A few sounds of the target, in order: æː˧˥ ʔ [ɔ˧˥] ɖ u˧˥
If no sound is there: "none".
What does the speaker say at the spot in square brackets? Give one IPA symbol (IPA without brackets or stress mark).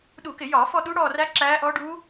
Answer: ɔ˧˥